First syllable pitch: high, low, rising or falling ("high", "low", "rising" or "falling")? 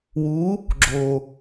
rising